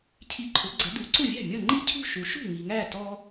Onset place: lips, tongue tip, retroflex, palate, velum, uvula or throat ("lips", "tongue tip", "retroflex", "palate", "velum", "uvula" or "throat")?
palate